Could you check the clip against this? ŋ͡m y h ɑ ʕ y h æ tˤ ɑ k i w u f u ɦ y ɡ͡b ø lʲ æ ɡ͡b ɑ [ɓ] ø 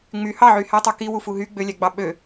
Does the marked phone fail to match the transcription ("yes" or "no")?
no